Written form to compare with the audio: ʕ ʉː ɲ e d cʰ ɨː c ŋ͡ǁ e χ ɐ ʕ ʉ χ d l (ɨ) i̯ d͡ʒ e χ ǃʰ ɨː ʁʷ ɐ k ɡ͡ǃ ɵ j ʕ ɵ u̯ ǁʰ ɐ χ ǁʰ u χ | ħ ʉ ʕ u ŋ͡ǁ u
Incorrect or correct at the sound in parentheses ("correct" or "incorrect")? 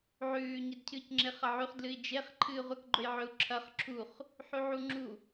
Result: correct